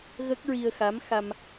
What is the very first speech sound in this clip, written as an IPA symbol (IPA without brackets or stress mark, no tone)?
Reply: ɣ